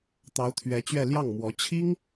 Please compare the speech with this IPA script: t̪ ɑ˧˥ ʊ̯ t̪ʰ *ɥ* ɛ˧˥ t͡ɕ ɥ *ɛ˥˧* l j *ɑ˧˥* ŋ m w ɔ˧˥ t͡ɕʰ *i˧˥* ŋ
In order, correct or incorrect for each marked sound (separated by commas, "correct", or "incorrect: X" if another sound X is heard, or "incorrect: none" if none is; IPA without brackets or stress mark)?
correct, correct, incorrect: ɑ˥˩, incorrect: i˥